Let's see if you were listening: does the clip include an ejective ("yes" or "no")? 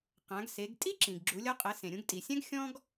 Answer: yes